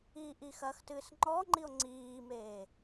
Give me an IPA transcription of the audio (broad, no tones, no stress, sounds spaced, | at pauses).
iː ʔ i x ɐ x t ɨː s ŋ͡ǃ ɔ ŋ͡ǃ i o̯ ŋ͡ǀ iː m eː